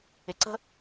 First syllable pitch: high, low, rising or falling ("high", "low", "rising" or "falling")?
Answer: low